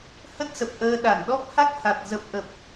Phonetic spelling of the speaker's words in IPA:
hə˦˥t̚sə˨˩p̚ ʔəː˧ ɗa˧˩nɗɔ˦˥p̚ ha˦˥k̚ ha˨˩t̚ zə˨˩p̚ʔə˨˩p̚

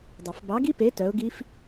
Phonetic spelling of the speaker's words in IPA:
dˤɘ˨˩˦f bɑ˨˥ɡi˦˥pe˨˥ tœ˨˥ʊ̯ɡi˦˥f

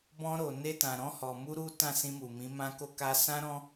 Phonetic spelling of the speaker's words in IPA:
bɔ̃˧ɾo˨ne˧ tã˨ɾɔ̃˧hɔ˨mu˧ ɾu˦ tã˦˨sĩ˧mu˨mĩ˨˦ mã˦ko˦ ka˧sã˦ ɾɔ̃˦

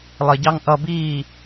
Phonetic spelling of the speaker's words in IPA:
lˠɪɟɑŋ ʔʌbiː

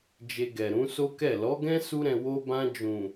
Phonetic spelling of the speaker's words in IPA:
d͡ʒe˧ɡɛ˨ ɾũ˨˦so˦kɛ˦˨ lɔ˨˦ɡɛ̃˦ su˦ɾɛ̃˧ wo˧bã˧ d͡ʒũ˨

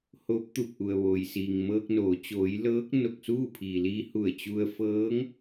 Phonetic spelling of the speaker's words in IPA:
ho˧˥p̚t̪u˧˩p̚ʔu˩ə̯ʋoː˩j siː˩ŋmɤː˧k̚noː˩˧ t͡ɕoː˩˧j lɤː˧˥k̚ no˧˩k̚suː˥˨pʰiː˩liː˧ hu˧˩ə̯t͡ɕu˧ə̯ fɤː˧˥ŋ

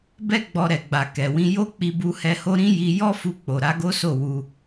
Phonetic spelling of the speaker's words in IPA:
bɛ˦ ɡ͡bɔ˧ ɾɛ˨ ɡ͡ba˨ kɛ˨wĩ˧ jo˦k͡pi˧bu˧hɛ˧ ho˦ ɾĩ˦ ji˦ jɔ˦fu˧k͡po˨ ɾa˨˦ɡo˦so˦˨ wu˧

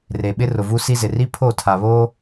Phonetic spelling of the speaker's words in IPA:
re˨ɓɪ˦ rʊ˨vu˦ si˦zɪ˨ ri˦pʰo˦˨ tʰa˨βo˦

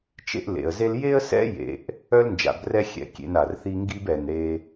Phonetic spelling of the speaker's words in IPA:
t͡ʃḛ˦ʔlḛ˩ə̯ze˦l je˦ə̯sɛ̰˦ jḛ˨ʔ | œ˥lnd͡ʒa̰˨brɛ˦ xʲɛ̰˩kʲḛ˨n a˩rθi˦ŋɡi˥b ɛ˩n ɾe˨

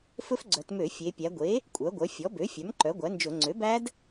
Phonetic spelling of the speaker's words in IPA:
fɵ˦˥fɡ͡ǀœ˩˧tmø˧˩˧ fʲe˩˧pʲæ˩˧ɡʷe˩˥ | kʷʼœ˩˥ɡʷœ˩˥ fʲɔ˩˥bø˩˥ fʲœ˩˥mǃœ˩˥ ɡʷæ˩˥nd͡ʒɵ˧˩˧ ŋ͡ǀø˩˥bæ˦˥d

